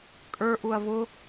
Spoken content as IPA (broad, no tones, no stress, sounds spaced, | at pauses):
kʼ ə˞ ʔ u ɐ̯ v ʊ